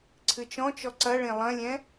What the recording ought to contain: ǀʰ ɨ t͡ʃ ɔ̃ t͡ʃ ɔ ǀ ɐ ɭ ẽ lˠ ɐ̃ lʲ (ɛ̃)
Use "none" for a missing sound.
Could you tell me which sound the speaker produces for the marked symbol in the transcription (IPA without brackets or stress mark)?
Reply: ɛ̃